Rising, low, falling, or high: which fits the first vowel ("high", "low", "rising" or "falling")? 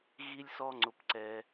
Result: high